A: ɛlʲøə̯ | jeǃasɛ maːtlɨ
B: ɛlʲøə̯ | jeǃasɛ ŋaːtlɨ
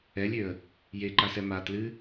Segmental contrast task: A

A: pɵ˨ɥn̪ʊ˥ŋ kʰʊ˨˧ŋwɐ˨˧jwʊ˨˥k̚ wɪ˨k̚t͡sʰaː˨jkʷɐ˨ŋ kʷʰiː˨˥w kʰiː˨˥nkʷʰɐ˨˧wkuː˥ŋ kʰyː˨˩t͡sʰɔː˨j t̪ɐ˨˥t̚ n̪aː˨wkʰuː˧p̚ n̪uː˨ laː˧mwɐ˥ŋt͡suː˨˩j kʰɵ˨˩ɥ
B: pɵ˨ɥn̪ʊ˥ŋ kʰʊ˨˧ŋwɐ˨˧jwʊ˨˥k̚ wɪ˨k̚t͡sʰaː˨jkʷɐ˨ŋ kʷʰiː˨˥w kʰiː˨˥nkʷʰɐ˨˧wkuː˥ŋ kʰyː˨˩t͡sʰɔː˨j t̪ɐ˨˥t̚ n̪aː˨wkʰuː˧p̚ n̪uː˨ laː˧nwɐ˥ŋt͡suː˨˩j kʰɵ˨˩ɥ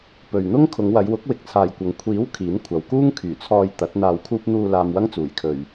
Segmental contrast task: A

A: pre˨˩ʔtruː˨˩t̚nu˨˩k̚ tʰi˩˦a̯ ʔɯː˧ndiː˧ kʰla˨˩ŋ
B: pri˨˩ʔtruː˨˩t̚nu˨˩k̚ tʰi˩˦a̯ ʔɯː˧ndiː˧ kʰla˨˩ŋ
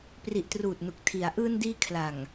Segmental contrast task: B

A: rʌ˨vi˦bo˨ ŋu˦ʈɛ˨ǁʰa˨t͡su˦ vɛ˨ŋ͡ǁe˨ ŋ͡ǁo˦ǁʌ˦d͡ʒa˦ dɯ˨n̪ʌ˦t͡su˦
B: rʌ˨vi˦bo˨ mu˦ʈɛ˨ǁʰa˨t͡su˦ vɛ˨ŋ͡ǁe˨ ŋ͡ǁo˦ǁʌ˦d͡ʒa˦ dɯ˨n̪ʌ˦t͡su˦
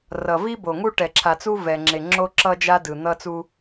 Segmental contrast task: A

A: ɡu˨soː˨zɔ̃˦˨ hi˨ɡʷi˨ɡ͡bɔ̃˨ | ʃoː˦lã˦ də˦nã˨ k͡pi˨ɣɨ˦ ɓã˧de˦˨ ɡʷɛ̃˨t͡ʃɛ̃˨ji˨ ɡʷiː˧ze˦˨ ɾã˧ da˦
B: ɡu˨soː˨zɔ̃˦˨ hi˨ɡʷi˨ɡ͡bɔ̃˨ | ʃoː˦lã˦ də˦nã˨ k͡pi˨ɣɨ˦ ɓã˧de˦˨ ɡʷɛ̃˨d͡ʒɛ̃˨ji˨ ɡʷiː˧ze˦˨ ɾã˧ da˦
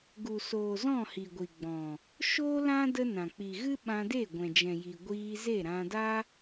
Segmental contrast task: B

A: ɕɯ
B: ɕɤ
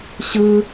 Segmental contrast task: A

